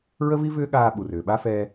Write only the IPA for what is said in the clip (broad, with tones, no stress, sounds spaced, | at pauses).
ɹ ə˦ v i˦ v ʏː˦ ɠ aː˧ ɓ u˨ r ʏː˨ ɓ a˦ f ɛː˧